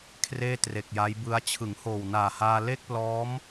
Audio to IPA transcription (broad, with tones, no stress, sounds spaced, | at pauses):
kʰ r eː˥˩ t r e˨˩ k̚ j a˦˥ j b ɯ˦˥ a̯ t͡ɕʰ ɯ˩˦ ŋ h oː˨˩ w n aː˨˩ h aː˧ l e˥˩ k̚ p l ɔː˦˥ m